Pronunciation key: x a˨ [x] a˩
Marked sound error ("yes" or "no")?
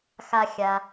yes